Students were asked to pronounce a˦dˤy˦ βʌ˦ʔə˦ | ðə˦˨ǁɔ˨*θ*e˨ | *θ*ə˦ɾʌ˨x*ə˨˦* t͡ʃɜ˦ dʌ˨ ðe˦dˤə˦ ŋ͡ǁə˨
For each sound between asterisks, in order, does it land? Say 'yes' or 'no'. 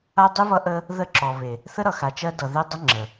no, yes, no

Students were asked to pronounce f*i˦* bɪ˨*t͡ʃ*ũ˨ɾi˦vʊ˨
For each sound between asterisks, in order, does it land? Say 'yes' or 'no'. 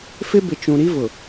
no, yes

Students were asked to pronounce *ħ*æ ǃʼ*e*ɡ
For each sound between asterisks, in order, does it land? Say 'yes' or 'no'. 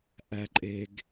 no, yes

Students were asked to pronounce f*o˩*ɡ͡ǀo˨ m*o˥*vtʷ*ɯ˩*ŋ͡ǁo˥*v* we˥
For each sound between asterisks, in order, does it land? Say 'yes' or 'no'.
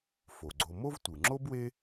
yes, yes, yes, no

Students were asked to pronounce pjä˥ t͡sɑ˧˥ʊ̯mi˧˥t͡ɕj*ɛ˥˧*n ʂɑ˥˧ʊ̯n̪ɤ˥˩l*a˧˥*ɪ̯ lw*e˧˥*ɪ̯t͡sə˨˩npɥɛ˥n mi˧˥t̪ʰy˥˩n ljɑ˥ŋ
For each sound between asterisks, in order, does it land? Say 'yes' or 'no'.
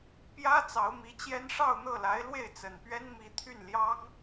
no, yes, no

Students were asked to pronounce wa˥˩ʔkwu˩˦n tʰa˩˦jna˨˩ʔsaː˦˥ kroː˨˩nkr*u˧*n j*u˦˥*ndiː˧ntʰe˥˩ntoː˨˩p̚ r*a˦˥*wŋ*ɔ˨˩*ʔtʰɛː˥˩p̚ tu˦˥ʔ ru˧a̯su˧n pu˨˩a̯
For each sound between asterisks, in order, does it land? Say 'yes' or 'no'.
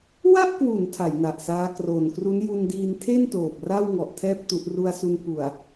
no, no, no, yes

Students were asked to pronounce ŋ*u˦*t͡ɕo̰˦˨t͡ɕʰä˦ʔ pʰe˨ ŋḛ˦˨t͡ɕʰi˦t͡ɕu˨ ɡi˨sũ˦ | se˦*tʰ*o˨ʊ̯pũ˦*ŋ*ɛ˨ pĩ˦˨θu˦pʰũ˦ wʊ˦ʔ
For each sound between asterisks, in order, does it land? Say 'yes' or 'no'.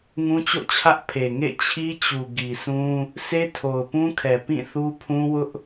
no, yes, no

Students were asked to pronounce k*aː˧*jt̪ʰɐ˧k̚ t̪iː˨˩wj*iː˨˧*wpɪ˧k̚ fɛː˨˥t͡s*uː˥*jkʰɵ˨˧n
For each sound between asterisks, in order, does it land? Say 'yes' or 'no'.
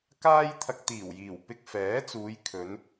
no, no, no

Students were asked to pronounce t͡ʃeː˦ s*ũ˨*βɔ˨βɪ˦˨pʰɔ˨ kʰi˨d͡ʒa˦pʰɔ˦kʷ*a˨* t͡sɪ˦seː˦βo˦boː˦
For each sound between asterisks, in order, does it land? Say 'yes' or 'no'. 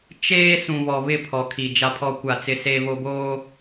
yes, no

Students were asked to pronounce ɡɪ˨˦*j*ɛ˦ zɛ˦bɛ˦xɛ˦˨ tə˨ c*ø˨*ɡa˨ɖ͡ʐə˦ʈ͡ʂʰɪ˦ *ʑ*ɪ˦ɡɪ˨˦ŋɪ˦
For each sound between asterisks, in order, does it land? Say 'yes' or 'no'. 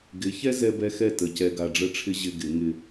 no, no, yes

